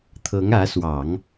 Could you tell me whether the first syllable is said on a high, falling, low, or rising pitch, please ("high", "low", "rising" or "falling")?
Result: rising